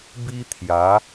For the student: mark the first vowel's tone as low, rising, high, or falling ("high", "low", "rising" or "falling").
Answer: high